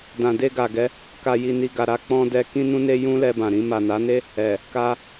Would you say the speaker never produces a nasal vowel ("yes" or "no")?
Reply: no